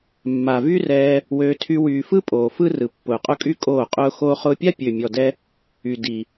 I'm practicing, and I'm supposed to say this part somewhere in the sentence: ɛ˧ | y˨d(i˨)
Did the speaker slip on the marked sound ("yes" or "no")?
no